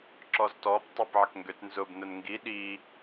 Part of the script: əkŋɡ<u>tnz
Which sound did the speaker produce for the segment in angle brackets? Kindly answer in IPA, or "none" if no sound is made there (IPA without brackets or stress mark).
ø